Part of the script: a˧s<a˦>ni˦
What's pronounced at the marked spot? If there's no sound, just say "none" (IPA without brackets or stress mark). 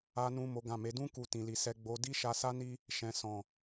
a˦